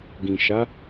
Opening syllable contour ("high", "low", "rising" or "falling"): low